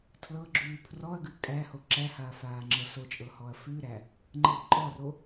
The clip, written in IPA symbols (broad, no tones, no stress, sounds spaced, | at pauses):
tʰ l ɤ ɡ͡ǁ ʉː pʰ r ɔ ɐ̯ ɡ ʉ kʼ æ h o ǁ æ h aː f aː ŋ͡ǁ ɤ s o t͡ʃʼ ɤ h ɔ ɐ̯ f ʉ ɾ æ | ŋ͡ǃ ɤ ǃʼ ɔ r o